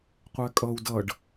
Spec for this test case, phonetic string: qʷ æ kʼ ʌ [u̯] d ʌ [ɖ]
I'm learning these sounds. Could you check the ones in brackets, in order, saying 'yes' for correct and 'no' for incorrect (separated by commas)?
yes, yes